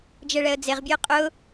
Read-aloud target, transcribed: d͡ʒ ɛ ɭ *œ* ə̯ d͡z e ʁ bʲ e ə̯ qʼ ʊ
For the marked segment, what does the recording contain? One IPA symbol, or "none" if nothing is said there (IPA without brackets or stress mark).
ɛ